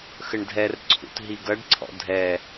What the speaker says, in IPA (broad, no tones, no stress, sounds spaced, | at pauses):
x ə ɳ dʱ ɛ r ǀʰ ṵ t ɦ i ɡ ʌ ɖ ǀʰ ɔ̰ dʱ ɛ